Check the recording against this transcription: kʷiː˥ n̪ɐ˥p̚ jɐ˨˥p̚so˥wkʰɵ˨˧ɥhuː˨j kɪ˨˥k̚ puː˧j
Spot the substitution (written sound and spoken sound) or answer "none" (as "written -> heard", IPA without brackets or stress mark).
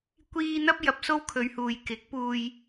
none